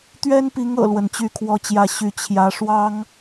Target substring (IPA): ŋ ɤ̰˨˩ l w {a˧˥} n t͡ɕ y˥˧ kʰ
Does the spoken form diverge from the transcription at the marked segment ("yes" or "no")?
yes